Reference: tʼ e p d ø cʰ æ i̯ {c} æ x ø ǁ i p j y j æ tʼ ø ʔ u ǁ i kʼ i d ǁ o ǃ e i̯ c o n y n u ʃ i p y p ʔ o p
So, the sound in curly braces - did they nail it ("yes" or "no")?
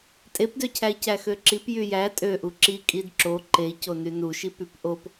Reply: yes